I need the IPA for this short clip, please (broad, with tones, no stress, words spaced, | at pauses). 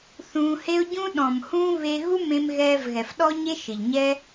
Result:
θũː˧he˦ʊ̯ ɟũ˦ɗɔ̃˨mhũː˦ βe˧ ɣu˦ mẽ˧mɣɛː˧vɣɛ˨fɗɔ˦ ɲe˦ʃɪ˨ʎɲɛ˦